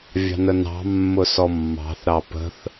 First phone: vʲ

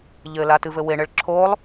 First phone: ʎ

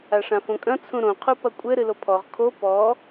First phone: a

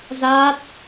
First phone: z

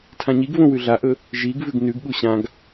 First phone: tʰ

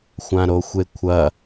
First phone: xʷ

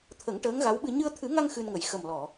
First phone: t̪ʰ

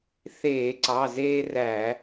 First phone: θ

